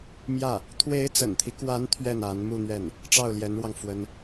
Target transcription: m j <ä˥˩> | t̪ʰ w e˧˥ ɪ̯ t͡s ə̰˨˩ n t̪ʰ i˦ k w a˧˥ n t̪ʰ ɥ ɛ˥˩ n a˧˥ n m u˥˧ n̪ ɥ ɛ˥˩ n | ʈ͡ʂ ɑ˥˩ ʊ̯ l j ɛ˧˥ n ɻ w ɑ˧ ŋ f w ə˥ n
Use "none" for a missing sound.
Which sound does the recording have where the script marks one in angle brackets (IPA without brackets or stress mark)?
ä˥˩